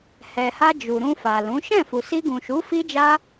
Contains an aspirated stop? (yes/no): no